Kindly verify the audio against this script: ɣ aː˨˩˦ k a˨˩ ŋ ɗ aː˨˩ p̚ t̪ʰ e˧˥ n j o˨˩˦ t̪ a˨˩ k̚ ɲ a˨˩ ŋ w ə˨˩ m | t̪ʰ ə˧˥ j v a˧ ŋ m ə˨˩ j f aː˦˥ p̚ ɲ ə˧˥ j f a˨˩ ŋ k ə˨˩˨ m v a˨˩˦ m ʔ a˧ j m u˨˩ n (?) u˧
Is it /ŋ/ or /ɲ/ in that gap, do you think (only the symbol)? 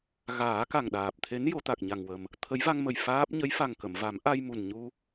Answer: ɲ